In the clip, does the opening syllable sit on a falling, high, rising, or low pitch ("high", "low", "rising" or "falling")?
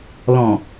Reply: low